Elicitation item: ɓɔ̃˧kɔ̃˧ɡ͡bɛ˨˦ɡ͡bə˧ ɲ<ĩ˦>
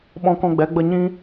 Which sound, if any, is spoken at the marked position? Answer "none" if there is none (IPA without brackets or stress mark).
ĩ˦